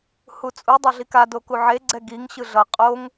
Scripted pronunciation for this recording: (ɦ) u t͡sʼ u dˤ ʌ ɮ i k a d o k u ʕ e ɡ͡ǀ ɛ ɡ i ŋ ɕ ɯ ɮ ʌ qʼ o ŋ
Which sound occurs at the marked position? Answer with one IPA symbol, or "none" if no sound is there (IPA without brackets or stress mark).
h